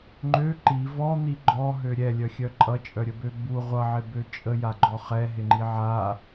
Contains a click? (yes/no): yes